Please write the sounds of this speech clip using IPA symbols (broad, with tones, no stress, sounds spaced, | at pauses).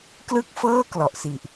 k l ɯ˥˩ k̚ f ɤː˥˩ k l ɔ˨˩ ʔ s i˨˩ ʔ